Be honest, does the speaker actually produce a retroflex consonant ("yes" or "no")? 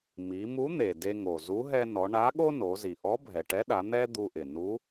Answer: yes